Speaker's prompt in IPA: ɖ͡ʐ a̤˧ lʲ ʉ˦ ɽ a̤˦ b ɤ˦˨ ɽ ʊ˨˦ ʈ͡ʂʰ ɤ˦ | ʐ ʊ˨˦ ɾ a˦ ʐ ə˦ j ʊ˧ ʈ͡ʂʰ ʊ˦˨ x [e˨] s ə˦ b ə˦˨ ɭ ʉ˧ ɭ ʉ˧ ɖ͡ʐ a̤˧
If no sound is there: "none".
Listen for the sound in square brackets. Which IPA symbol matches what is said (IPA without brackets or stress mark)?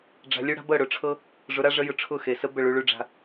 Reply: e˨